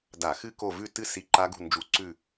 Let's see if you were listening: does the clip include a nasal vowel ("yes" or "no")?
no